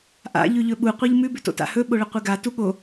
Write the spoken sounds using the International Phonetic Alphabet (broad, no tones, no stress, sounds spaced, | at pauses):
ʔ a̰ ʎ ʉ ʎ ɵ ɓ u qʷ i ʎ m ʉ b ʉ t o̰ t a̰ h ɵ ɓ o ɭ ɐ qʷ ɨ ɡ a t u ɠ o